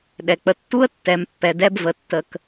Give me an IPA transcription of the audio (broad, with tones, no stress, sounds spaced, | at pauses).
ɗ ɛ˨ k͡p ə˨ tː u˦ ə̯ tː ɛ˨˦ m pː ɛ˨ d ɛ˦ b v ə˨ tː ə˨ k